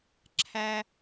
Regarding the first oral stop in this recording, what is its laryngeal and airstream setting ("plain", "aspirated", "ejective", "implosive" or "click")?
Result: click